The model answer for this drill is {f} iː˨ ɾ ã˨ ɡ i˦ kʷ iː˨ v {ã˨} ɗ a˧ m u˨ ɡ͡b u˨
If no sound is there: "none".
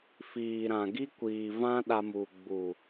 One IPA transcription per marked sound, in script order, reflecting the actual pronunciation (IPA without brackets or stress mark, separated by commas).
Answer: f, ã˦